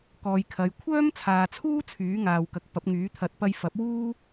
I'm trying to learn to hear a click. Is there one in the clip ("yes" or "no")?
no